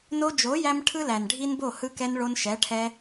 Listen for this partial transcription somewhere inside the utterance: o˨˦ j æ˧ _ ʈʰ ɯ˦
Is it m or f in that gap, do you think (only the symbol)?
m